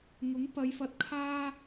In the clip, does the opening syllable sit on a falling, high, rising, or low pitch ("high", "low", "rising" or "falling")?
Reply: rising